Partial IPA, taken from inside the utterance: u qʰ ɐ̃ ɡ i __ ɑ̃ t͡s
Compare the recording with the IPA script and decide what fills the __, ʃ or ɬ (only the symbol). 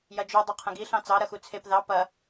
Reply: ɬ